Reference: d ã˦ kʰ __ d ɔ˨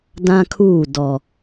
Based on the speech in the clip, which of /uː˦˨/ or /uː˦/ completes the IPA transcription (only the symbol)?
uː˦˨